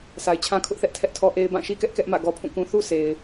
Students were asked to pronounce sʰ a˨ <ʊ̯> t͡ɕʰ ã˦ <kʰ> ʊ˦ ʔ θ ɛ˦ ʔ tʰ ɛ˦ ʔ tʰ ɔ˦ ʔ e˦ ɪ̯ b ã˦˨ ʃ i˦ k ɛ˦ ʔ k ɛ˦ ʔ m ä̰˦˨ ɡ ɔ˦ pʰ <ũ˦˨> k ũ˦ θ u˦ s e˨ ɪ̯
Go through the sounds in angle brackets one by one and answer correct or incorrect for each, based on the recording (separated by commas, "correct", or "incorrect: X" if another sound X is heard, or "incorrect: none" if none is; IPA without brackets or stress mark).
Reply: incorrect: ɪ̯, correct, correct